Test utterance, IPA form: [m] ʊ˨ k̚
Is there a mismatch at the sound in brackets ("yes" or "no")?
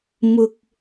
no